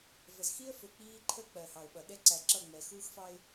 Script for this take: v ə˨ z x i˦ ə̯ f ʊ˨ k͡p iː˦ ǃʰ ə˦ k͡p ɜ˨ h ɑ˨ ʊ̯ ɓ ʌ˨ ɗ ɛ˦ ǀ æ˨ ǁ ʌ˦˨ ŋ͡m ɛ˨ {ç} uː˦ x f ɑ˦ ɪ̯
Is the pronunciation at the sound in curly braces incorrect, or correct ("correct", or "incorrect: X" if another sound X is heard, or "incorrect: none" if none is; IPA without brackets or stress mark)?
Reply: incorrect: x